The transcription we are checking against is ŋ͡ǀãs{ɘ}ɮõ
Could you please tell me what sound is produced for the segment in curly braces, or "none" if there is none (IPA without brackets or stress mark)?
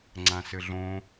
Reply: ɘ